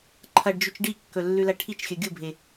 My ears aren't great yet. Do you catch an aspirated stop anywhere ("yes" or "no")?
yes